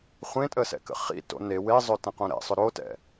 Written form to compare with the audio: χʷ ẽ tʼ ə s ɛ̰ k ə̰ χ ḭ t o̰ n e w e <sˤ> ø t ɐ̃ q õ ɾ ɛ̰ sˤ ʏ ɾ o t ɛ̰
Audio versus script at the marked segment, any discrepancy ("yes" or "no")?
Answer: yes